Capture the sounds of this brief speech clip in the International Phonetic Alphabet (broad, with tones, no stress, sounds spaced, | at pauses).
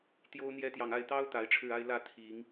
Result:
t̪ j o˦ ʊ̯ n̪ j ɛ˦ t̪ j ɑ˨ ŋ a˥˨ ɪ̯ t̪ ɑ˦ ʊ̯ t̪ a˨˦ ɪ̯ ʈ͡ʂʰ ɻ̩˥˨ a˦ ɪ̯ l ä˥˨ t̪ʰ i˨˦ ŋ